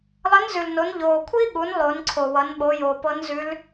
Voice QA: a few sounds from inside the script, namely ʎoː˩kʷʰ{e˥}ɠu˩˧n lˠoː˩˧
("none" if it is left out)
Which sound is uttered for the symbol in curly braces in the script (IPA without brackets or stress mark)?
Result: i˥